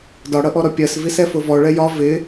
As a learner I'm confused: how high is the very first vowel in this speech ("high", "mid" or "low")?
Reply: low